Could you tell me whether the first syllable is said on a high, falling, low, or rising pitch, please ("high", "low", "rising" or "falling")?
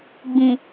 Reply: low